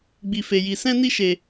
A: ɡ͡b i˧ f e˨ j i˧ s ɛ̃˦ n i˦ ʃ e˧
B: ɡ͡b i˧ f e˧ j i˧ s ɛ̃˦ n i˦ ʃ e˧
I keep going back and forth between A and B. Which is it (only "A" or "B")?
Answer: B